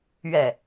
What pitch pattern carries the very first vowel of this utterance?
falling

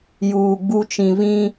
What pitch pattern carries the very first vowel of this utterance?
low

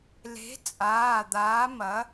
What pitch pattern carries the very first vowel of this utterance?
rising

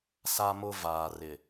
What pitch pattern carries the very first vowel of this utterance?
high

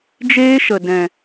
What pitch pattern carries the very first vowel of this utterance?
high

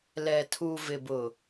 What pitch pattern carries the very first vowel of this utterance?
low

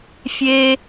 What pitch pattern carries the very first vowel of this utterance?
high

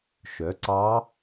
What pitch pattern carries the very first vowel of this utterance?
rising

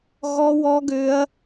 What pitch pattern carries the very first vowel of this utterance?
high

